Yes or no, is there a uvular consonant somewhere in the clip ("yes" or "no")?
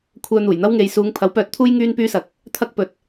no